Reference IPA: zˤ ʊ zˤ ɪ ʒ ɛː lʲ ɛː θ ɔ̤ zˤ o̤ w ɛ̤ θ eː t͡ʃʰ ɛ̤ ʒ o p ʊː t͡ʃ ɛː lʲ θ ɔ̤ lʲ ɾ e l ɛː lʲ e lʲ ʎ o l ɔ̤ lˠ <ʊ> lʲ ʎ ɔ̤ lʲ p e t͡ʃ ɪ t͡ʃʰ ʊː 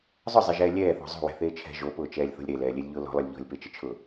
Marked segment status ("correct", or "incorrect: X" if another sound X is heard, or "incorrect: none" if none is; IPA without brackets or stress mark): correct